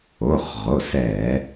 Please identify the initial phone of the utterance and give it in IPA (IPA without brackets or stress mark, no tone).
o